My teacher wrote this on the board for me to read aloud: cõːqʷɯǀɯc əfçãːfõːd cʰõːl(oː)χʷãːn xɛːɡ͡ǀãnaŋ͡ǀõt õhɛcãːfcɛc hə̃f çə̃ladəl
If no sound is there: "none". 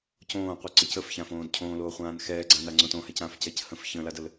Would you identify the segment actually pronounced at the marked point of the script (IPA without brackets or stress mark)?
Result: oː